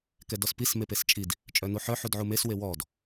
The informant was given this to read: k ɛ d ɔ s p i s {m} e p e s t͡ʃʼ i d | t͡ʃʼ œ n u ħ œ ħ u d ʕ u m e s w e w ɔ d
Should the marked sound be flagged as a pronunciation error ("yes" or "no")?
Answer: no